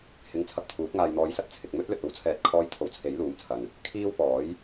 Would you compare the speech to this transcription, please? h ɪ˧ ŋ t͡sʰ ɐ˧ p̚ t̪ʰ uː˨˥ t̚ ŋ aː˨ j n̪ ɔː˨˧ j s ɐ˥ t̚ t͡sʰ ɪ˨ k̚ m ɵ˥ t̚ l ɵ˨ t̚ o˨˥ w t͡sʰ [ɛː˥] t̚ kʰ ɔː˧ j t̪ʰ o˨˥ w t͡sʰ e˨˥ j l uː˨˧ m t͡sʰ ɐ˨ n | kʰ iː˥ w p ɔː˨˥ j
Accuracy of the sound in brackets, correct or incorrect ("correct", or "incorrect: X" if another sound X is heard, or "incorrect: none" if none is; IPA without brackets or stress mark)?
incorrect: ɛː˨˥